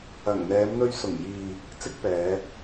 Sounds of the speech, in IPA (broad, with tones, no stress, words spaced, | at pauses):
ɐ˨˩ŋ n̪ɛː˨˧mn̪ɵ˧ɥ sʊ˨˩ŋjiː˨ | t͡sɪ˥k̚pɛː˨˧